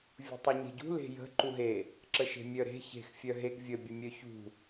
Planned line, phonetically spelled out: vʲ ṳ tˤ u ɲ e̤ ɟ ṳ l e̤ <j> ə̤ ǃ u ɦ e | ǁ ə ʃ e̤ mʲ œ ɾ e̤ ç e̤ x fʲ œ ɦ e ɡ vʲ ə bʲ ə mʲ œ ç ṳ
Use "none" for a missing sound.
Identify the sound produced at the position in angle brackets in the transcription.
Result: j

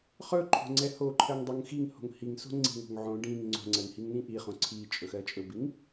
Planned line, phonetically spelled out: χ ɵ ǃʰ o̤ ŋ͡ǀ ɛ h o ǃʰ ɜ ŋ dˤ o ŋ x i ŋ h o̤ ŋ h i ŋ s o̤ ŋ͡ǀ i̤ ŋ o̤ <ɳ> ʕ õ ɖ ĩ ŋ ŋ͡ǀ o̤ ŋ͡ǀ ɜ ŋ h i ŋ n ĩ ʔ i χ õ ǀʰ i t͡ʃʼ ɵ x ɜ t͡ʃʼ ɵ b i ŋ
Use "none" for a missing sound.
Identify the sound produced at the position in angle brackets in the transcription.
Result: ŋ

